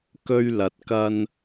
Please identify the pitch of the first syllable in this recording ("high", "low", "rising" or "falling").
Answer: high